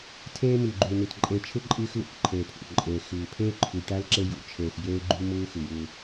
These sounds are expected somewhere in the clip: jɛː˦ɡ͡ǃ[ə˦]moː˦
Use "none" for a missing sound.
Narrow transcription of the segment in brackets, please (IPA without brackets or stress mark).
ʉ˦